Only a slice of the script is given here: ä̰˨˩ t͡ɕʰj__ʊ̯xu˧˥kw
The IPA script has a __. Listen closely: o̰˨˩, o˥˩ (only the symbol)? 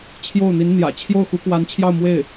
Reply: o˥˩